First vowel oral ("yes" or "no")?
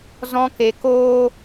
no